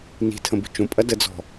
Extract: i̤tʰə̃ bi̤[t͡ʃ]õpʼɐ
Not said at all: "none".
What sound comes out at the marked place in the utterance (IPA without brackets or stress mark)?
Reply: t͡ʃ